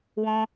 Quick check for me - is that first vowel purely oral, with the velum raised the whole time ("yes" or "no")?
no